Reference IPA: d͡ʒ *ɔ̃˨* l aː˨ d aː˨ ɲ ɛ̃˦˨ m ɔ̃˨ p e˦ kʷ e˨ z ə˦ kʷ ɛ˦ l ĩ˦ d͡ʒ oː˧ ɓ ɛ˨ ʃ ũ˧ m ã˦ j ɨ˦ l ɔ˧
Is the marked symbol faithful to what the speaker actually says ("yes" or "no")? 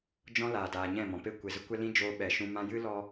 no